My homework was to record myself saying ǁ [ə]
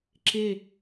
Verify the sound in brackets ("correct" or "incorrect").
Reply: incorrect